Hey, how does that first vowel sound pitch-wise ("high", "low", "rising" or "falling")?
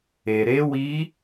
low